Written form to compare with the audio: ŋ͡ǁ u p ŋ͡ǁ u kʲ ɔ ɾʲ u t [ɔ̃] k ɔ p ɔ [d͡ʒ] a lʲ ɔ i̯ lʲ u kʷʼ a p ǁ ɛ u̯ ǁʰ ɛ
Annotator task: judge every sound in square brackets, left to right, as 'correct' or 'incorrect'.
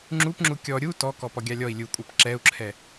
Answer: incorrect: ɔ, incorrect: ɡʲ

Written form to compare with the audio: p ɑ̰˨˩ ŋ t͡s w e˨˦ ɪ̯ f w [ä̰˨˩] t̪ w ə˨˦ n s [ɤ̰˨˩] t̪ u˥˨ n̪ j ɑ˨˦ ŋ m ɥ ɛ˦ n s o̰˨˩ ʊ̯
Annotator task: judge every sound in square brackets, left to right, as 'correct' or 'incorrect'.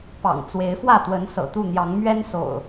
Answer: incorrect: ä˥˨, correct

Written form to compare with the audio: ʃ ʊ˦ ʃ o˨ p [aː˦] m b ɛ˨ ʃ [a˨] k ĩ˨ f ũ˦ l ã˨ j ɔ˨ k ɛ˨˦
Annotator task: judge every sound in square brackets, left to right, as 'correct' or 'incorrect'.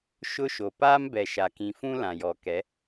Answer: correct, correct

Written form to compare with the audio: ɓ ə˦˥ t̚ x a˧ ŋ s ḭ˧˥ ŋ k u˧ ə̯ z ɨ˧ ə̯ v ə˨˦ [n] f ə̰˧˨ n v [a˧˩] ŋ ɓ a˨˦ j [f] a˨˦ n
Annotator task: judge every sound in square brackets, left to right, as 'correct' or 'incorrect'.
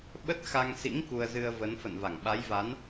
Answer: correct, correct, incorrect: v

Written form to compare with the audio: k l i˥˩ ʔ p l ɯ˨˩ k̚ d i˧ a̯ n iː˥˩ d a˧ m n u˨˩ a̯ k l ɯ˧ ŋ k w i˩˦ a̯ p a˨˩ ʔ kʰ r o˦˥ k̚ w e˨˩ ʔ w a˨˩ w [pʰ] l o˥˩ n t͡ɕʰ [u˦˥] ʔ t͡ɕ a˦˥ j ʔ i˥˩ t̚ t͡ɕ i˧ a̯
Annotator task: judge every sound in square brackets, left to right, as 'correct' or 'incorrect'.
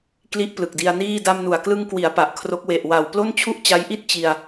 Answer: incorrect: p, incorrect: u˥˩

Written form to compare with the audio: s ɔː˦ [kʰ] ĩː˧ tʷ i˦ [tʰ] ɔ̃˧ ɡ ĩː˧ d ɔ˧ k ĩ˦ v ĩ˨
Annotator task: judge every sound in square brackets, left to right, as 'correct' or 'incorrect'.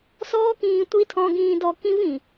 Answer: incorrect: k, correct

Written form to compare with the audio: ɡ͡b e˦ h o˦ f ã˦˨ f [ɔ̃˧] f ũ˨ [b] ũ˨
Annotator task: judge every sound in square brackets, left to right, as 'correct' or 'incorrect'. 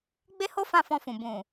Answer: correct, correct

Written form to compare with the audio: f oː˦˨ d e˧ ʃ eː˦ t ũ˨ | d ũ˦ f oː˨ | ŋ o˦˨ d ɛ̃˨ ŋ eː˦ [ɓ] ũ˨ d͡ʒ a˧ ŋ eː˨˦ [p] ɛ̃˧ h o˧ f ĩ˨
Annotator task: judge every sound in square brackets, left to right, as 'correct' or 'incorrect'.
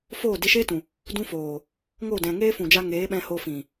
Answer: incorrect: f, incorrect: ɓ

